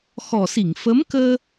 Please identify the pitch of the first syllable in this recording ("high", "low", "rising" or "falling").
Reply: low